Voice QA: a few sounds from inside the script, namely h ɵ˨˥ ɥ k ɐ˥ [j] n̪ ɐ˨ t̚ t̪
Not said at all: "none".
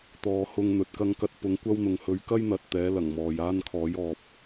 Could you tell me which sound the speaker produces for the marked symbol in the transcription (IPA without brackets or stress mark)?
j